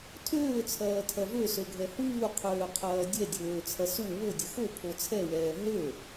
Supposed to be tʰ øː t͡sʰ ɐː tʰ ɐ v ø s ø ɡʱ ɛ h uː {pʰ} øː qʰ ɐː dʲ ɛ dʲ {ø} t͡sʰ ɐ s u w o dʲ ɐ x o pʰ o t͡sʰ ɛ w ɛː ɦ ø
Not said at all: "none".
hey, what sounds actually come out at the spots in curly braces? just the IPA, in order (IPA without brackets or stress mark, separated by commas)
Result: qʰ, øː